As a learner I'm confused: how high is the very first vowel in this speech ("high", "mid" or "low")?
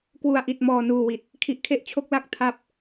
high